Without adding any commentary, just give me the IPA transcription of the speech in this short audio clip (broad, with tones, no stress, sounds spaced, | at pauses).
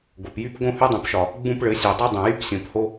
ɡ o˨ p j y˦ p ɡ õ˦ h y˦ dˤ ũ˨ p ʃ ɒ˨ | ɡ͡b ũ˦ p ɭ ɘ˨˦ sʲ u˨ dˤ ɛ˦ dˤ ɛ̃˨ j y˦ p sʲ õ˨ p h o˦